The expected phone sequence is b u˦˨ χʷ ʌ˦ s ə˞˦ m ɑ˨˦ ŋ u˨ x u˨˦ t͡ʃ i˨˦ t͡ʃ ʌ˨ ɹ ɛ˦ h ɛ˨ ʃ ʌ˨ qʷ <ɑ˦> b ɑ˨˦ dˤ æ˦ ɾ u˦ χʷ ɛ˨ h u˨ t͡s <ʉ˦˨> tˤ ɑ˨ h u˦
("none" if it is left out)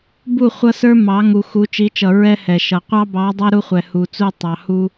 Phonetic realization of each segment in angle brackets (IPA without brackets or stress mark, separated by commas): ɑ˦, u˦˨